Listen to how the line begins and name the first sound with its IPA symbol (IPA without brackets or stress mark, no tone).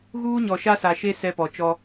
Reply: ɣ